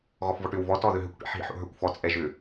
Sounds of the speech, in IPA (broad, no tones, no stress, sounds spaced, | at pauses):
ɣ ɔ f v ɔ ʈ ʏ w v ɔ t ɔ ð ʏ ɦ ʏ kʷ ʈ ḭ ħ ɦ ḭ ħ o̰ ɦ ə˞ kʷ f ɔ t͡sʼ ɛ ʒ ʏ